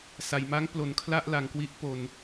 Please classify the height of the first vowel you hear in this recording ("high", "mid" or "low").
low